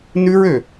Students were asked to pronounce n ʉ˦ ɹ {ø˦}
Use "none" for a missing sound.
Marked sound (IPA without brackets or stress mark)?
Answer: ø˨